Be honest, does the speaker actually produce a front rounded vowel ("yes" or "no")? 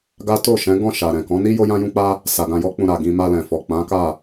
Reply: no